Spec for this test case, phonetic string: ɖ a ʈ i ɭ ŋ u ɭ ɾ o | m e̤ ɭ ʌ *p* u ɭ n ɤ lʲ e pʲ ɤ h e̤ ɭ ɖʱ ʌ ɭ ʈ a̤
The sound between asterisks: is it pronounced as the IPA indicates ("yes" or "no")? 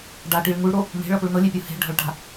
yes